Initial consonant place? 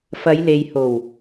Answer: labial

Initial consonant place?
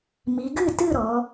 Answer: labial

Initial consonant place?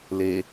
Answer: alveolar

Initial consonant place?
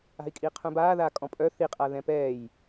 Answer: velar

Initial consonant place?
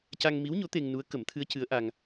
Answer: palatal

